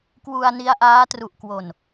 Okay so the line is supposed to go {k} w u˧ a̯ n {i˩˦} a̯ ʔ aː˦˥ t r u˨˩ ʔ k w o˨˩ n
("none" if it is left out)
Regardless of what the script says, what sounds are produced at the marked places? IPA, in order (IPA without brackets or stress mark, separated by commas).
k, i˦˥